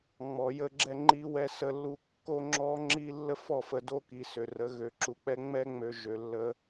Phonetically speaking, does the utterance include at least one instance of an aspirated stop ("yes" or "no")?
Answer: no